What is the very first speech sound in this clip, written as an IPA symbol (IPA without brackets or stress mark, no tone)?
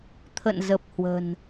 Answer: t̪ʰ